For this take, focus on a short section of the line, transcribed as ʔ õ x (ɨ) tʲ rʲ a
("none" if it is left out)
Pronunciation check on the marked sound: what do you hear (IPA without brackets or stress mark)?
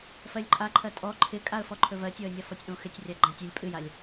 ɪ